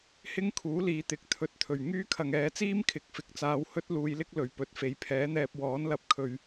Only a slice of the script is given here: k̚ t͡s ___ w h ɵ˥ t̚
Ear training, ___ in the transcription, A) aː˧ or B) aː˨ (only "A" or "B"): A